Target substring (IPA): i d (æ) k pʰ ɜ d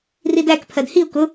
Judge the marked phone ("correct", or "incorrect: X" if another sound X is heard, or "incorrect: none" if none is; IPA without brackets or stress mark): correct